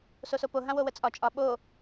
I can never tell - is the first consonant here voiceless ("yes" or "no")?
yes